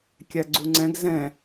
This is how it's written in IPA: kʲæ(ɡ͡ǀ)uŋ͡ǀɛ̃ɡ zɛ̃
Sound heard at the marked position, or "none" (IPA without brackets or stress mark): ɡ͡ǀ